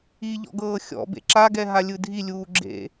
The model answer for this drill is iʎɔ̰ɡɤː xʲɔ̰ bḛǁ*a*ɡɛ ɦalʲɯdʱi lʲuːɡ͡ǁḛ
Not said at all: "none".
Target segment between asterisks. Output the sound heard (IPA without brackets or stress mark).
a